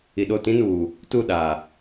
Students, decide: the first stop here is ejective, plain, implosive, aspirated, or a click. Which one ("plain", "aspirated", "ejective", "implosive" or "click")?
implosive